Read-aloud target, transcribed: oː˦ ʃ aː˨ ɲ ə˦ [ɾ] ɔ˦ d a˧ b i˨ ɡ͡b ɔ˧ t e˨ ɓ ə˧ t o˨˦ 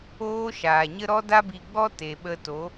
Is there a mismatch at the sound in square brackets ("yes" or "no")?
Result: no